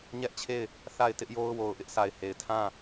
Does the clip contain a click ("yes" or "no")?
no